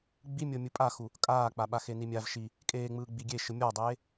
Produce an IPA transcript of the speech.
ɡ͡b i mʲ ɤ mʲ ɯ pʼ a x u | kʼ aː k͡p a ɓ a x e n i mʲ a v ʃ i | kʼ eː ŋ͡m ɯː ɡ͡b i ɡʲ e ʃ ɯ mʲ ɔ dˤ eː

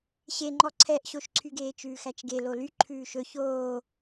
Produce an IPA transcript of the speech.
ɕ e ŋ͡ǃ ɔ ǀʰ ɛ ʔ ɕ o ʃ ǀʰ y ɡ eː t͡ʃ ʉː x æ t͡ʃ ɡ e l o l y ǃʰ ʉː ʃ ɵ ç oː

